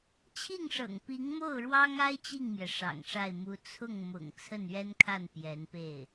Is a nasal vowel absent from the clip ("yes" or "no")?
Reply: yes